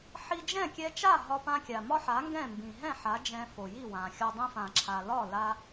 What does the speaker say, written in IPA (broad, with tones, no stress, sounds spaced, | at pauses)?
ħ i˧ d͡ʒ ɛ̃˥˩ kʲ ɛ˧ t͡ʃ a˥˩ ɦ ɒ˧ p ã˧ kʲ a˩ m ɒ˥ ħ a˩˥ ŋ ɡ ɛ̃˥˩ m b ĩ˩ ɦ ɛ̃˥˩ ħ a˩˥ d͡ʒ ɛ̃˧ f o˩ j i˥˩ w ã˩ xʲ ɒ˧ dˤ ĩ˧ f ã˩ ǁʰ a˩ l ɒ˥˩ l a˧